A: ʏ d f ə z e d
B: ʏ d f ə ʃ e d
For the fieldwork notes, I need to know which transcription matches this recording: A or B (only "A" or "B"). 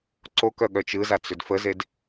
A